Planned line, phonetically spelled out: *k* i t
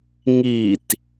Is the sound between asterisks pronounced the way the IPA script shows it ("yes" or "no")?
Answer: no